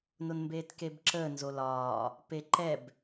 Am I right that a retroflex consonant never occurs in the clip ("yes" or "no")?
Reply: yes